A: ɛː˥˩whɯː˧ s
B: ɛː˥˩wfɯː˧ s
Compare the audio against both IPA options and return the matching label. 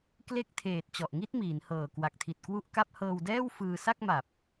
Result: B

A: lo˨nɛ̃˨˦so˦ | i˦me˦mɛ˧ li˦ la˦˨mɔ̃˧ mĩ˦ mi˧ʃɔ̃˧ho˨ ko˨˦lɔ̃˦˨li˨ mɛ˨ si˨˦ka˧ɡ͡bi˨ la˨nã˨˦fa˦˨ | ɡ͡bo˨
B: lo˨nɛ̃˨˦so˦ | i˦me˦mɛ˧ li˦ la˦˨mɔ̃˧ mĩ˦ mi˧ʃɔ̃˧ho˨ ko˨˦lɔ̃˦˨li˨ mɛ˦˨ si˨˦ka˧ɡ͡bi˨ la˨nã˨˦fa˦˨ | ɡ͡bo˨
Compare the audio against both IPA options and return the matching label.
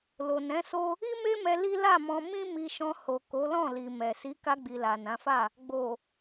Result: A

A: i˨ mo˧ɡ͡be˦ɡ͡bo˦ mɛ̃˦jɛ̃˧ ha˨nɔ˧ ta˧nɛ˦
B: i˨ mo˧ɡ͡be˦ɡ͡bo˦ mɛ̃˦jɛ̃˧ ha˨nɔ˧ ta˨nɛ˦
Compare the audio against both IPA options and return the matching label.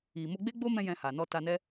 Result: A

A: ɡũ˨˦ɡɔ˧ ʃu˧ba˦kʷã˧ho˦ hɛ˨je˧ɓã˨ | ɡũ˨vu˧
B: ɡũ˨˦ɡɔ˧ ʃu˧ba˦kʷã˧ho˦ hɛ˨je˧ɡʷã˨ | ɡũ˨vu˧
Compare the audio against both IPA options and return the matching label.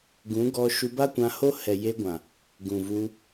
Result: B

